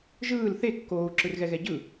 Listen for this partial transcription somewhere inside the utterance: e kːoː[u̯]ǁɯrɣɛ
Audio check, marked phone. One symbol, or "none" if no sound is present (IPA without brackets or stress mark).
u̯